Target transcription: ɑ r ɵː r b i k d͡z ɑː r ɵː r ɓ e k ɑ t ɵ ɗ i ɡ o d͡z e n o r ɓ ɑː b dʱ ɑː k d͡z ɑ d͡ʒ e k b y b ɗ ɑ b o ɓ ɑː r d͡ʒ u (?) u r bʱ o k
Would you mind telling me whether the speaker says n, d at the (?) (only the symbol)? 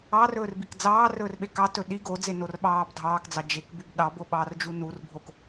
n